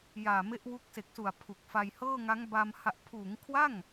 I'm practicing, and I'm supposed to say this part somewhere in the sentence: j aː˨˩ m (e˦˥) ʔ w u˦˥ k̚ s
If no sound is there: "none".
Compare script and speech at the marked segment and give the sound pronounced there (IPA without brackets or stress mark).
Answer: e˦˥